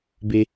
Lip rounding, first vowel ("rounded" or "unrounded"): unrounded